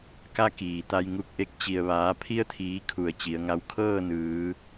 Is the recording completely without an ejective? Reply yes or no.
yes